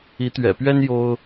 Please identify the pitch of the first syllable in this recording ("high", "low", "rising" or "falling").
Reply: rising